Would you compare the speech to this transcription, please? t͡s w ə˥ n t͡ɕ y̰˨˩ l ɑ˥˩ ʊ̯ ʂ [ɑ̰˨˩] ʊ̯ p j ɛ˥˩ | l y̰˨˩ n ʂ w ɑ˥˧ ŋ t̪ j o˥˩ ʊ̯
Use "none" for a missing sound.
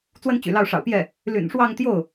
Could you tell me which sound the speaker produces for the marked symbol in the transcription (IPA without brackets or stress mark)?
ɑ̰˨˩